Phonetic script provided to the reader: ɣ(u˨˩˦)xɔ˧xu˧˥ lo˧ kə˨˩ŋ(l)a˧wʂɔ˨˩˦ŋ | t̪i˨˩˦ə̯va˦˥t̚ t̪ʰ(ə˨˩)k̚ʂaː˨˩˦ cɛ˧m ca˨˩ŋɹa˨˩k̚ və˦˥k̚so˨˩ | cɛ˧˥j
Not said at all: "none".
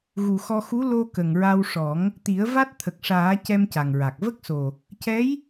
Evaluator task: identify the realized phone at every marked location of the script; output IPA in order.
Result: u˨˩, ɹ, ə˨˩

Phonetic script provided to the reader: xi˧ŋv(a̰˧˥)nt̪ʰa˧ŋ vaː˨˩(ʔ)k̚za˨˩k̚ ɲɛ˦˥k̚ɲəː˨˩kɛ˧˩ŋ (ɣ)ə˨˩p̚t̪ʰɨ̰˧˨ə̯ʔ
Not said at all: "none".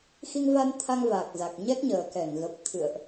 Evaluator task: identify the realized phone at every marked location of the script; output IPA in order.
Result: a˧, none, ɣ

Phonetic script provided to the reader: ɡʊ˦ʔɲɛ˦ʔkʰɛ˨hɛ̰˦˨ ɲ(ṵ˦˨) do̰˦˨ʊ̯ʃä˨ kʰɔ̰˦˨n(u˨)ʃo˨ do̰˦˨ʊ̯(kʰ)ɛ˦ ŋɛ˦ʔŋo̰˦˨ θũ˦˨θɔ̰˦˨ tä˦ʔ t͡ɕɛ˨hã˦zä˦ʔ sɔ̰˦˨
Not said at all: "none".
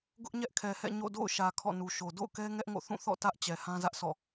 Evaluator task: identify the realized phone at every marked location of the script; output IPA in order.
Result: o̰˦˨, u˨, k

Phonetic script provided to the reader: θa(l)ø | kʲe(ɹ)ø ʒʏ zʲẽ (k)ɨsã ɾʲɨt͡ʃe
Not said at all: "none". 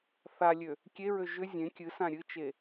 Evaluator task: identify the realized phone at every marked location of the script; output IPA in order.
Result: lʲ, ɹ, kʲ

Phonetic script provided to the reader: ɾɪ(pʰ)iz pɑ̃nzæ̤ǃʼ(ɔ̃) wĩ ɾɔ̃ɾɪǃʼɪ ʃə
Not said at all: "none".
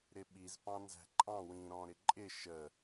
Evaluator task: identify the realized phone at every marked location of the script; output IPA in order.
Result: ɓ, ɑ̃

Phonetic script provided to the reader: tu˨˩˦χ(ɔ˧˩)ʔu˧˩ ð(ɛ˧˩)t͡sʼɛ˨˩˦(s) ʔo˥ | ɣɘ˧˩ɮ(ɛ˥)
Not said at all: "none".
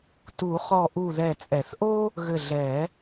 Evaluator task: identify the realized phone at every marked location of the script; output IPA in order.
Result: ɔ˧˩, ɛ˧˩, θ, ɛ˨˩˦

